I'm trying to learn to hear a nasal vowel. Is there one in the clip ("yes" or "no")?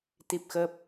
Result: no